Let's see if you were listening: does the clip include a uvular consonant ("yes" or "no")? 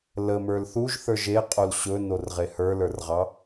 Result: yes